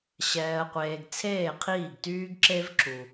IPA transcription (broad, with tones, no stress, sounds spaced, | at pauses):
ɕ ɛː˨ ə̯ qʷ eː˨ ɡ t͡sʰ eː˦˨ qʰ iː˦˨ ɡ t yː˦ ɡ ǁ e˦ v ǁ u˨